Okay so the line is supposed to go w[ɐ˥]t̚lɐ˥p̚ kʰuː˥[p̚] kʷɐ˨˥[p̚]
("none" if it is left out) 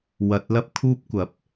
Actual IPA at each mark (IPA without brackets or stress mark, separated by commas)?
ɐ˧, p̚, p̚